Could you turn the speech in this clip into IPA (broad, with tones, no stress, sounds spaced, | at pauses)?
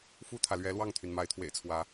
f u˥˨ t̪ʰ ä˩ l ɥ ɛ˨˦ l w ɑ˥˨ ŋ t̪ʰ y˩ n m a˨˦ ɪ̯ t̪ʰ w ḛ˨˩ ɪ̯ t͡sʰ w ä˨˦